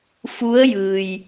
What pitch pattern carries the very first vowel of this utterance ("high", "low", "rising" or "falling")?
rising